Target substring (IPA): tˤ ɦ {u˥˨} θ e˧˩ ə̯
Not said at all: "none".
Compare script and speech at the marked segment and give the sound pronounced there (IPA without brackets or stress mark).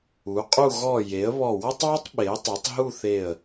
u˥˨